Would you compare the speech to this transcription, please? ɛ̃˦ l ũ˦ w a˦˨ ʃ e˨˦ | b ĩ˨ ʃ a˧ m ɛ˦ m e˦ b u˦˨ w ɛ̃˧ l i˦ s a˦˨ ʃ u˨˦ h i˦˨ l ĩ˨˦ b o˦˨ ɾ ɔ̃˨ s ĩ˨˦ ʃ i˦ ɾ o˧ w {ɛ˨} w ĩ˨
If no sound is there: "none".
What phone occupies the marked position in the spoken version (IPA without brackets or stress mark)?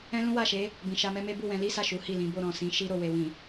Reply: e˨